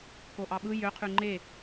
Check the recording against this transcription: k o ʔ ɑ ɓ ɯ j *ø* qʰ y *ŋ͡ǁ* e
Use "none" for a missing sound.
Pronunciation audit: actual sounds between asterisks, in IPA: ø, ŋ͡ǃ

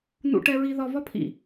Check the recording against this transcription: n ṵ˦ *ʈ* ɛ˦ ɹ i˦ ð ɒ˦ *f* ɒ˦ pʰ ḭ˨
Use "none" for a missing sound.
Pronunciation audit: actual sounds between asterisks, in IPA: ʈ, v

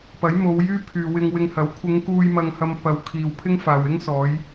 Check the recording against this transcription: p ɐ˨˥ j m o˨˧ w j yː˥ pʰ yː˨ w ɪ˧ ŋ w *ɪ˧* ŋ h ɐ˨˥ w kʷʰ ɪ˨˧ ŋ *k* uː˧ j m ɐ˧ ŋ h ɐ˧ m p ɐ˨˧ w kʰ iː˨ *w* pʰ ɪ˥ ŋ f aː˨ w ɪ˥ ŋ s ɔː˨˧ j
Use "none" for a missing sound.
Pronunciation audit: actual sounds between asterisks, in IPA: ɪ˧, k, w

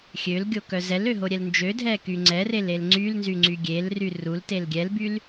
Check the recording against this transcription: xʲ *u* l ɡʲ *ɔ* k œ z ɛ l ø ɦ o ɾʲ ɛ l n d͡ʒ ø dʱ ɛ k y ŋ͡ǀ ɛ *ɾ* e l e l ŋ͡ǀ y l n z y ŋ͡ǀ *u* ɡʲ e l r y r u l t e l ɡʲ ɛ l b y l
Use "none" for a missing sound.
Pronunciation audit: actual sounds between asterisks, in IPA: ø, o, r, y

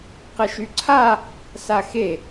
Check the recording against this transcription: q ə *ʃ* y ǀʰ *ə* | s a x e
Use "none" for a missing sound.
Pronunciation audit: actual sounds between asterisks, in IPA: ʃ, a

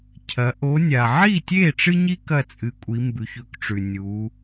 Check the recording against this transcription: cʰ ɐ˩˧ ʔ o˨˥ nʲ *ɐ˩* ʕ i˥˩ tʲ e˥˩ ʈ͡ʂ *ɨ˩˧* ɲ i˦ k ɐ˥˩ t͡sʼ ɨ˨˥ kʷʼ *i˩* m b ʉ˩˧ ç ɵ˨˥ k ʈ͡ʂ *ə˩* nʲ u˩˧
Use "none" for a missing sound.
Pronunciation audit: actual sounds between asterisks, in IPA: a˩, ɨ˦, i˩˧, ʉ˩

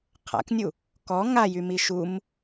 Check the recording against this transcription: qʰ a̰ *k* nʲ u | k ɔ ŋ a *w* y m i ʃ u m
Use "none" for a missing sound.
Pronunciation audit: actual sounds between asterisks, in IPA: k, j

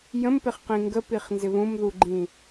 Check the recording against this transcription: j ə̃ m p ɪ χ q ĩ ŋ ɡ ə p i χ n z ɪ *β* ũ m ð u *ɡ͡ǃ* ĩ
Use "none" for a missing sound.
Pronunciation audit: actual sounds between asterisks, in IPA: β, ɡ͡ǃ

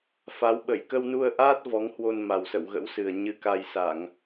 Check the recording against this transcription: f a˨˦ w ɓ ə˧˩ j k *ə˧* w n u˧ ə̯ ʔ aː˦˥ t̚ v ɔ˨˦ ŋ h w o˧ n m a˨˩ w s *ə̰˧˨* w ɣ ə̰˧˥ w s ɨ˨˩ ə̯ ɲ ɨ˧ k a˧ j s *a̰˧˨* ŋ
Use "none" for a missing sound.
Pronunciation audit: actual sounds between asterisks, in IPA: ə˧, ə̰˧˨, a˧˩˨

